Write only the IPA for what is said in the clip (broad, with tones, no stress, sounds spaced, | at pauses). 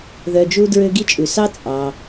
ð œ˧ d͡ʒ u˦ d ɹ ø˦ ɡ i˦ t͡ʃʼ ʉ˨ s ɑ˦ t͡sʼ ɑ˧